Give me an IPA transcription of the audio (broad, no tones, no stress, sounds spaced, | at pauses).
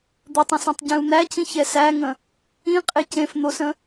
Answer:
d̪ ə tˤ ə̃ s ĩ tˤ ɟ ẽ u̯ n̪ æ c ĩ ç ɛ s æ ŋ ə̃ | ĩ qʼ e c ẽ f n̪ o s ə̃